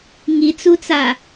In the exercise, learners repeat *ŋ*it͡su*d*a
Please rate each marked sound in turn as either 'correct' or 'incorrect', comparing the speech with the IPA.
correct, incorrect: t͡s

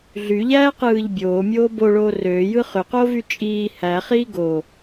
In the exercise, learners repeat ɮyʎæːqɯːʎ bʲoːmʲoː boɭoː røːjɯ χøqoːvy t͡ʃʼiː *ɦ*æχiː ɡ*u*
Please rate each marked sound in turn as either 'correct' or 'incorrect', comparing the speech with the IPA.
incorrect: h, incorrect: o

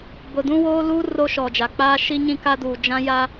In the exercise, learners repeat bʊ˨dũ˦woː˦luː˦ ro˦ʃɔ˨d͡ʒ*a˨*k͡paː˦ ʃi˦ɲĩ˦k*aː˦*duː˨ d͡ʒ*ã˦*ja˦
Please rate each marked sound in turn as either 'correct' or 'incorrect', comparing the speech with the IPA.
correct, incorrect: a˦, correct

